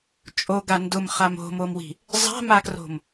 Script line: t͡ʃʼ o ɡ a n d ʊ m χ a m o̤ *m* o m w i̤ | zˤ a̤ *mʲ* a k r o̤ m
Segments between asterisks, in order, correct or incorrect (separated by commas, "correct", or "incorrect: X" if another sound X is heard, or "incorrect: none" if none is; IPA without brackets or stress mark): correct, incorrect: m